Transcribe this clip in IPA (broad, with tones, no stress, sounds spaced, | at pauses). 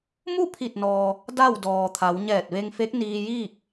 m u˥˨ pʰ i˧˩ t̚ n ɔː˩ | d a˥˨ w d ɔː˩ t̪ʰ a˩˧ w ɲ ɛː˧˩ t̚ ʋ e˧ ŋ f e˧˥ k̚ n iː˧ j iː˥˨ k̚